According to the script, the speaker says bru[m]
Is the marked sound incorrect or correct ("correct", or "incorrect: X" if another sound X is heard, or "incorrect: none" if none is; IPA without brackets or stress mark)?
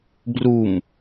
correct